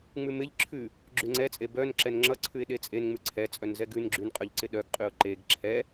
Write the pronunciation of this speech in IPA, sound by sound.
ŋ͡m ʉ m ɪ ʎ ǁʰ ʉ | ɡ͡ǁ ʉ ŋ͡ǀ ɛ t͡sʼ e b œ n ǁ ɛ n ŋ͡ǁ ʌ ǀʰ ʉ ɪ̯ ɗ e t͡sʼ e n ŋ͡m ʉ ǀʰ ɛ t͡sʼ œ n z ɛ ɡ ʉ n ɡ͡ǁ ʉ n qʼ œ ʎ ǀ ɪ ɗ œ ɡ qʼ ʉ ʊ̯ ǃ e ɡ ǁʰ ɛ

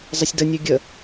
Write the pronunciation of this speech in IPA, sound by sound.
zˤ ə sʲ d ə nʲ ʉ ɡʲ ə

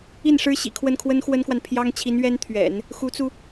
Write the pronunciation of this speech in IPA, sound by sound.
i˥˩ n ʂ ɻ̩˥ ɕ ḭ˨˩ kʰ w ə˥˩ n kʰ w ə˥ n x w ə˥ n k w a˨ n pʰ j ɑ˥ ŋ t͡ɕʰ i˧˥ n ɥ ɛ˥ n t̪ʰ ɥ ɛ̰˨˩˦ n | x u˧˥ t͡s u˧

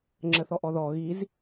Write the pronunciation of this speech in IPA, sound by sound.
ŋ͡ǁ ə θ ɔ ʔ ɔ ð ɔ ɣ i z

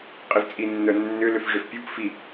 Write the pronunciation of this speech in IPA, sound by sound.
qʼ i v t͡sʼ i nː œ nː ʏ l ʏ f ʐ ʏ f pʲ u p f i

